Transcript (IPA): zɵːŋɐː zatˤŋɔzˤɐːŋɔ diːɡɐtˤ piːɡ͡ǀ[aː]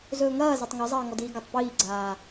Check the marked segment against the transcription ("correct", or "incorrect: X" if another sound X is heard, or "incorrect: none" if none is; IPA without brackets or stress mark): correct